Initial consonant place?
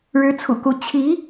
retroflex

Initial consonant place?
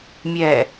labial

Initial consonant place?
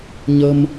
palatal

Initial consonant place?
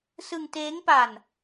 alveolar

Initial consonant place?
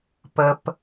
labial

